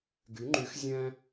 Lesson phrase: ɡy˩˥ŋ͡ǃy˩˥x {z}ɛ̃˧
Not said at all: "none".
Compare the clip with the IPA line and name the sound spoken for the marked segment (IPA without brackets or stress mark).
zʲ